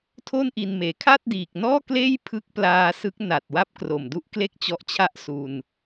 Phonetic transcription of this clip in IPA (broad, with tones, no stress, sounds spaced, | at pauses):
tʰ o˥˩ n ʔ i˧ n m eː˨˩ kʰ a˥˩ t̚ d iː˨˩ k̚ n ɔː˥˩ k l eː˥˩ j pʰ ɯ˦˥ k̚ p l aː˧ s ɯ˦˥ k̚ n a˨˩ t̚ w a˦˥ p̚ k r o˨˩ m d u˦˥ ʔ k l e˥˩ k̚ t͡ɕ ɔ˦˥ ʔ t͡ɕʰ a˥˩ ʔ s u˧ n